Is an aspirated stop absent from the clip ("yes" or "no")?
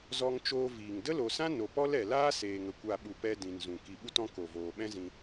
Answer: yes